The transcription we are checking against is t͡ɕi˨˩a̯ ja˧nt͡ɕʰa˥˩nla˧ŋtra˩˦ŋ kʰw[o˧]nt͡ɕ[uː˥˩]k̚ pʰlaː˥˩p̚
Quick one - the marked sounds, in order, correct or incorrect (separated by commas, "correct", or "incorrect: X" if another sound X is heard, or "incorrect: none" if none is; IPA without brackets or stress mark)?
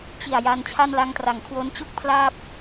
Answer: incorrect: o˦˥, incorrect: u˥˩